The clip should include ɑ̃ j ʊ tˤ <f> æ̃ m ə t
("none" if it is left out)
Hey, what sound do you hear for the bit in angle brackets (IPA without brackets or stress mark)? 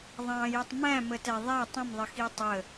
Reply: m